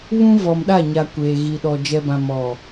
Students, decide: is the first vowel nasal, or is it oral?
nasal